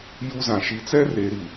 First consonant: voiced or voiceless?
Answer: voiced